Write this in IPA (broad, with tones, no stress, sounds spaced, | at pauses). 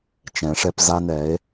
t͡ʃ ɛ̃˨˦ ʂ ɛ˦ p z a˦ n ɛ˨˦ e̯